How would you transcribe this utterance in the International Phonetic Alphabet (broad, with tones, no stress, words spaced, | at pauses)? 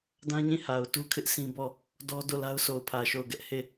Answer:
dã˦ɲĩ˦˨ ha˨ʊ̯tu˦kʰɪ˦ʔ sĩ˦bɔ˦˨ | dɔ˦do˦˨la˦ʊ̯ so˨ʊ̯pʰä˨ʃo˦˨ʊ̯ɡɛ˦ʔ he˦˨